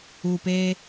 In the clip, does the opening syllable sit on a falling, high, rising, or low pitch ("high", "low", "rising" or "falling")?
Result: low